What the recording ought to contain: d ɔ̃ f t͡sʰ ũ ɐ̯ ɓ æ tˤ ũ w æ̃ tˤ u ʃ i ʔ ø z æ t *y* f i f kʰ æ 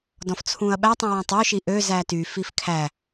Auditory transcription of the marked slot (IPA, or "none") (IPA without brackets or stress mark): y